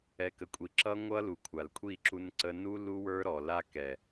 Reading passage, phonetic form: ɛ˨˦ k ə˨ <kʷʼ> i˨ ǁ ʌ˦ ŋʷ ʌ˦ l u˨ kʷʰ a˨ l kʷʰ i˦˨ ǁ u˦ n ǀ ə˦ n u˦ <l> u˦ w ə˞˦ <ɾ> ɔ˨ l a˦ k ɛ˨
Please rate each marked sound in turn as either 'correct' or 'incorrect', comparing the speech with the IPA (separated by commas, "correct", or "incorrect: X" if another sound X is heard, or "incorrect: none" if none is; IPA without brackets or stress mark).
correct, correct, correct